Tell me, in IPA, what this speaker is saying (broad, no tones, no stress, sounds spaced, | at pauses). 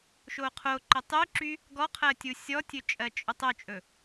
ʃ o qʰ o ǃ ɵ tˤ y ǁ y | ɡ ɔ qʰ ɜ tʲ u sʲ ɔ tʲ ɵ t͡ʃʼ ɜ t͡ʃʼ ɵ tˤ ɵ t͡ʃʼ ɵ